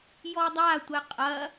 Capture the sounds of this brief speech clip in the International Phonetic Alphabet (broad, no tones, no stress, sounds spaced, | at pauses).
j ɔ dˤ a tʷ ɛ qʼ ɐ